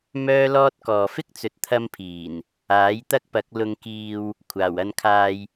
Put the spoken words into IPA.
mœː˥lɔː˥t̚kɔː˨ fɪ˥k̚t͡sɵ˨t̚ t̪ʰɐ˧mpʰiː˨˩n | aː˨˥jt̪ɐ˥k̚pɐ˨˥k̚ lʊ˧ŋkiː˧w | kʷʰaː˨˩wɐ˧nkʰaː˧j

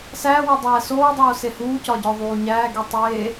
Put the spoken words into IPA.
sæwo dˤæːsoːdˤoː sehuːcɒ ɟɒðˤuːɲæːɡi tˤeː

